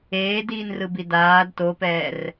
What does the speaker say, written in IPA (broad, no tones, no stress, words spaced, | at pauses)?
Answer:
eːdiːnrɯbi daːd topɛːr